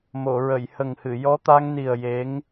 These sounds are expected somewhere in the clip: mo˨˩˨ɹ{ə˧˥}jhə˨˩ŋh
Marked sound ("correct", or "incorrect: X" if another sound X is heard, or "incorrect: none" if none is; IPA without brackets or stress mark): incorrect: ə˨˩˨